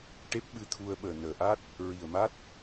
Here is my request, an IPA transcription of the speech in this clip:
ʈ e˦˥ p̚ ɓ ɨ˧ t̪ʰ u˧ ə̯ ɓ əː˨˩ n əː˨˩ ʔ a˦˥ t̚ | ɹ i˨˩ ə̯ m a˦˥ t̚

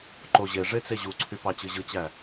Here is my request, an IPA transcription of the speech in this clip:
ǃ o ʑ e ʐ e t͡s e ʑ u ǀʰ y p ɑ t͡ɕ ɯ ʑ ɯ t͡ɕ æ

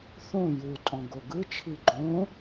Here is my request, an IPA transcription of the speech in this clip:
θ õ j u tʼ ɔ̃ ɡ o ɡ ɯ t͡ʃʰ i ɡ͡ǃ õ

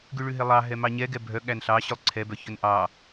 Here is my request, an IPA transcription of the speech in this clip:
ɡ ʉ ɭ ʉ ɦ e lˠ ɑ ɦ ɛ m ɑ ɲ ɛ ɡ ɛ bʱ œ ɠ æ n ɬ ɑ ɕ ʉ lˠ ǀʰ ɛ b œ ç ɵ n ʔ ɑ

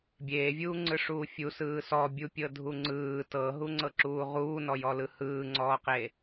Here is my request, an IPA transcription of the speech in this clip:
bʲ eː vʲ uː ŋ͡ǀ ɯ ʂ uː fʲ u s ɯː s ɔ bʲ u pʲ ɤ dʱ u ŋ͡ǀ ɯː t ɤ ɦ u ŋ͡ǀ ɤ ǁ uː ʁ uː n ɔ j ɔ l ɯ h ɯː ŋ͡ǀ ɔː q e

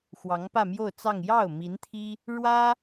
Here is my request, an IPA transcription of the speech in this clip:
x w ɑ˧˥ ŋ p ä˥˧ m j o˥˧ ʊ̯ t͡s ɑ˥˧ ŋ j ɑ˥˩ ʊ̯ m i˧˥ n t̪ʰ i˥ | ɻ w ä˥

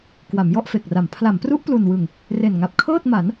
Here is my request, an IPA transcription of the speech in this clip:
k w a˩˦ m j ɔ˥˩ ʔ f e˨˩ k̚ r a˩˦ m pʰ l a˩˦ m p r u˦˥ ʔ p l u˨˩ n w ɯ˨˩ ŋ | r e˨˩ n ŋ a˨˩ p̚ kʰ ɤː˥˩ t̚ m a˩˦ n

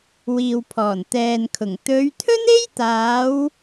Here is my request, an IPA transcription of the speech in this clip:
w iː˨ w pʰ ɔː˨˩ n t̪ ɛː˨ n kʰ ʊ˨˩ ŋ t̪ ɵ˨˧ ɥ t̪ʰ ɵ˥ n e˥ j t̪ aː˨˧ w

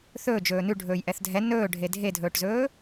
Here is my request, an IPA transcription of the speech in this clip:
θ ɵː d͡ʒ ɵː n ʉ ɖʱ ɵː j ʔ ɛ θ dʱ ɛ n ɵː ɖʱ e dʱ e dʱ ɵː ʈ z ɵː

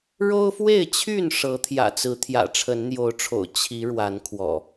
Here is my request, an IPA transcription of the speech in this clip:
ɻ o˦ ʊ̯ f w e˥˨ ɪ̯ t͡ɕʰ y˥˨ n ʂ ɤ˨˦ t̪ʰ j ä̰˨˩ t͡s ɹ̩˨˦ t̪ʰ j ä̰˨˩ ʈ͡ʂʰ ə˨˦ n n̪ j o˨˦ ʊ̯ ʈ͡ʂʰ o̰˨˩ ʊ̯ t͡ɕʰ i˨˦ ɻ w a˨˦ n kʰ w ɔ̰˨˩

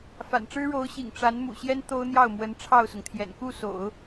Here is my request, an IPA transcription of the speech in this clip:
f a̰˨˩ n ʈ͡ʂ ɻ̩˥ ɻ o˧˥ ʊ̯ ɕ ḭ˨˩ ŋ ʈ͡ʂ a˧˥ n m ṵ˨˩ ɕ j ɛ˥ n t̪ o˥ ʊ̯ n̪ j ɑ˥˩ ʊ̯ m w ə˧˥ n ʈ͡ʂʰ ɑ˥˩ ʊ̯ s ʊ˩ ŋ t̪ʰ j ɛ̰˨˩ n k u˥˩ s o̰˨˩˦ ʊ̯

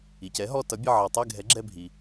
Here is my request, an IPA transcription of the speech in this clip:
i˩ c ɛ˩˥ ɦ ɔ˦˨ t ʌ˩˥ bʲ ə˦˨ ʕ ʌ˩ tˤ ɛ˦˨ ɡʱ ɛ˩˥ ɡ͡ǁ ɛ˦˨ bʱ i˩

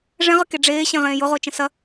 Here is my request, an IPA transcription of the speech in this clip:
ʐ ɛ̃ ʁ ə k e ɖ͡ʐ eː ɕ ẽ ʁ ẽː j ʊ ʁ ʊː t͡ʃ ə̃ s ɐ

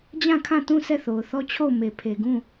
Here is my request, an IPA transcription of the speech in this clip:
d͡ʑ ã˦˨ kʰ ã˦˨ t ũ˦˨ s ɛ˦˨ θ o˨ ʊ̯ θ ɔ˦ t͡ɕʰ o˦˨ ʊ̯ m e˨ pʰ e˨ ɡ ũ˦˨

